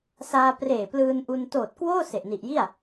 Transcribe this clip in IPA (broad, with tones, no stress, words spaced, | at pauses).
saː˧ preː˨˩ plɯː˧n ʔu˧n toː˨˩t̚kwoː˥˩ se˨˩ʔni˨˩ʔji˥˩a̯